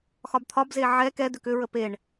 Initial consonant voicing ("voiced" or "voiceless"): voiceless